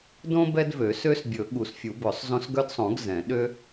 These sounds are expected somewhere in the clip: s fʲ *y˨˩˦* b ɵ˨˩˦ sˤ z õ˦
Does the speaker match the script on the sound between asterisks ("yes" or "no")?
no